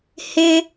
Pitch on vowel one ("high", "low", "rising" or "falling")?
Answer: high